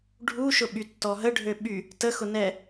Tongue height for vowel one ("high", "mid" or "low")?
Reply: high